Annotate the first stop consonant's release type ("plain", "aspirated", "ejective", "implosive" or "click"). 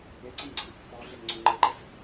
click